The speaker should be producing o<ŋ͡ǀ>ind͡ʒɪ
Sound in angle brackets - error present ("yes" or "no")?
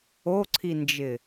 yes